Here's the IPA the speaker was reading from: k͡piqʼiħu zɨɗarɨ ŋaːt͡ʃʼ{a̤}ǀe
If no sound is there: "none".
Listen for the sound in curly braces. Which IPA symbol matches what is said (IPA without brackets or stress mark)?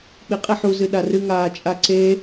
a